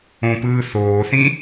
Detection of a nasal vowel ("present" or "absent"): present